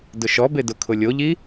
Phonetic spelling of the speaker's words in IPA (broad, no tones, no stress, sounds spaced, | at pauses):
d ʊ ʃ ɔ b e d ʊ kʰ ʊ lʲ o ʎ i